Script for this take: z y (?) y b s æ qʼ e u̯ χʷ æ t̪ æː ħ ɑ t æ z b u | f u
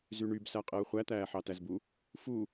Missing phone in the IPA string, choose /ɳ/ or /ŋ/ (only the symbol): ɳ